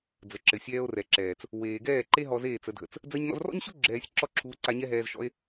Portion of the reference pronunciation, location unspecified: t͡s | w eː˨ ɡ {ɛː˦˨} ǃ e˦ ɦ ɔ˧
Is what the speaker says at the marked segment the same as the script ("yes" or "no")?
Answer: yes